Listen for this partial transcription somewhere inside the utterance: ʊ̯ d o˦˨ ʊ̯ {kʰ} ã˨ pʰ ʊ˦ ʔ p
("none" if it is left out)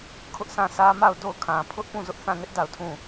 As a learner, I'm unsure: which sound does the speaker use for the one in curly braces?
kʰ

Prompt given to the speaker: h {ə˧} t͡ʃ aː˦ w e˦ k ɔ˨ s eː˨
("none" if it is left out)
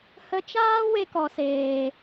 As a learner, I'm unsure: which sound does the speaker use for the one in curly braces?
ə˧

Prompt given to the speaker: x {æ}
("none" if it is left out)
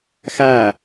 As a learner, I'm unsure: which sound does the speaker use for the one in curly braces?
æ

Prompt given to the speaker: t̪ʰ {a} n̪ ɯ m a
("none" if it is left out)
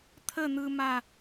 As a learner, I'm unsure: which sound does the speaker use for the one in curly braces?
ə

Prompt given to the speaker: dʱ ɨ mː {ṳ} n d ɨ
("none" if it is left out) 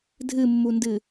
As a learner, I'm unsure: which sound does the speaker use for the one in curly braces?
u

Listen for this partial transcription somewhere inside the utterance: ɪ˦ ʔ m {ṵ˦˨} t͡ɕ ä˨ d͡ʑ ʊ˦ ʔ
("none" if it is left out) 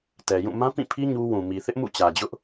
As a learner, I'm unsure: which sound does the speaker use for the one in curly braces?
ṵ˦˨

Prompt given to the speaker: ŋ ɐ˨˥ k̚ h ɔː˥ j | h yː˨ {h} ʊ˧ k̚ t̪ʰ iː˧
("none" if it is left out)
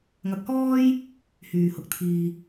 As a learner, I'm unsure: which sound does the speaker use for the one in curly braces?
h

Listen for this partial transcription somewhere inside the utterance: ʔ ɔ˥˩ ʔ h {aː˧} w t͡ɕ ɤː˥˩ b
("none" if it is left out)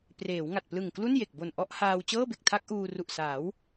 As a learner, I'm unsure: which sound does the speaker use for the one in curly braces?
aː˧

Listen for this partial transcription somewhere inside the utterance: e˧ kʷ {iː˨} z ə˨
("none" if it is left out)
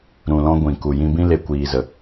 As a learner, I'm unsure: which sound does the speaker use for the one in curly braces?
iː˨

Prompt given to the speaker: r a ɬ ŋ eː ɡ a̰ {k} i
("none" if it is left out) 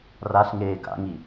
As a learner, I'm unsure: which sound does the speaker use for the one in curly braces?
ŋ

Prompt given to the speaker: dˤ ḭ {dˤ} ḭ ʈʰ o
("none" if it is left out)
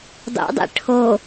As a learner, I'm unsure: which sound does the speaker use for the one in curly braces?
dˤ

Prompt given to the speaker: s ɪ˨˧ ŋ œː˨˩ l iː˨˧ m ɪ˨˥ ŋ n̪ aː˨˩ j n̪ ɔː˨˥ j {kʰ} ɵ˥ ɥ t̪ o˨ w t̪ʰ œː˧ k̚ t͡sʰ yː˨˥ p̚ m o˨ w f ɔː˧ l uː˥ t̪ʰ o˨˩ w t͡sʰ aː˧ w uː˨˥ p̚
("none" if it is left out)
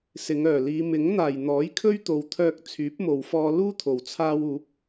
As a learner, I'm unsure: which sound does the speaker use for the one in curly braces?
kʰ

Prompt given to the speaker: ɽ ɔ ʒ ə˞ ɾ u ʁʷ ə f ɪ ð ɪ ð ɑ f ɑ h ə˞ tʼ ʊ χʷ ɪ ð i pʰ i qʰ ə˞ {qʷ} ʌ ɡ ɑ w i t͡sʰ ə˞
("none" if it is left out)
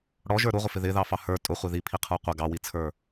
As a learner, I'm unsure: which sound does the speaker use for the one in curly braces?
qʷ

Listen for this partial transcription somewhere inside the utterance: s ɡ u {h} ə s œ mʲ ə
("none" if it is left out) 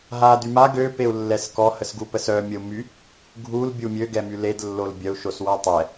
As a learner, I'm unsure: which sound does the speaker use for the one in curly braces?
p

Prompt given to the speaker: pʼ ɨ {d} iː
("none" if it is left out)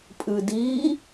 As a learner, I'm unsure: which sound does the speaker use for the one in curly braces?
d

